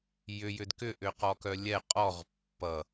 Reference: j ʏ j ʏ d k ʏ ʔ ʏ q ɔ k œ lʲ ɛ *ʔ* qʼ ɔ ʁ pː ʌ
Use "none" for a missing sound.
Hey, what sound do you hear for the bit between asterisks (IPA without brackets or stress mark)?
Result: none